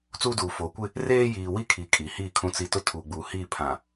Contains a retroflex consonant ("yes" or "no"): no